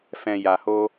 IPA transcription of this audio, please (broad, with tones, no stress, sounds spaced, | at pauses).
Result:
f ɛ̃˨ j a˨ h o˧